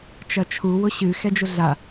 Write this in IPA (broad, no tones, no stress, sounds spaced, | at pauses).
t͡ʃ ɐ t͡ʃʰ u w ʊ ɕ ɨ x ɛ d͡ʒ ʊ ɮ a